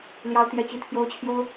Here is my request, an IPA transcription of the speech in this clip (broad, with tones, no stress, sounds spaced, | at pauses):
l j ɑ˥ ʊ̯ t̪ j ɛ˥˧ t͡ɕ i˥˩ t̪ʰ j o˥ ʊ̯ t͡ɕʰ j o˥ ʊ̯